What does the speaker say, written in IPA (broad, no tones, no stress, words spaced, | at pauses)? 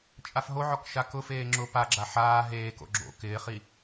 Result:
t͡ʃʼafɦoʕɔk ʃakʊfeː ŋ͡ǁʊ paɡ͡ǁa ħaː ɦeːko̰ ɡ͡ǁo̰ kɪːχi